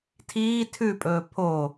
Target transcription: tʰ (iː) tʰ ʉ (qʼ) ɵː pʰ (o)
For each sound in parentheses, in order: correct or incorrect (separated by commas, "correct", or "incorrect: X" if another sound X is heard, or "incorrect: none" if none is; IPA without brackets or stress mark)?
correct, incorrect: pʼ, correct